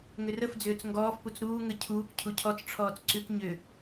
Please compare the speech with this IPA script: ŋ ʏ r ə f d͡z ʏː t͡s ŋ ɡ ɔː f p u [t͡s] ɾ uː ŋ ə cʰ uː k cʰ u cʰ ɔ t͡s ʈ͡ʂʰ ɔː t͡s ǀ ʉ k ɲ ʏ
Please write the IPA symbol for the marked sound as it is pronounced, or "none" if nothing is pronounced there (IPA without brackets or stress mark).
t͡s